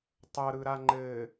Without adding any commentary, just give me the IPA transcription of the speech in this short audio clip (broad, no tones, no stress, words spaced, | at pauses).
tˤɤɾɯɾa ŋ͡ǃɘ